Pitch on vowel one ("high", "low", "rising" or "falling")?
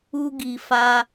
high